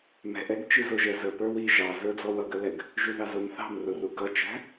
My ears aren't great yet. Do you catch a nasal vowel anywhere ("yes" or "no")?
no